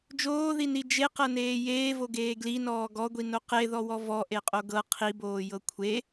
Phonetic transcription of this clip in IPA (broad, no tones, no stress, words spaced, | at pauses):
d͡ʒoːðini d͡ʒeqɤneː jeːvoɡeː ɡlinɔː ɡɔɡʷino qeðɔwɔ vɔʔeqʼo ɡɤ qʰiboːjɤ kʷʰe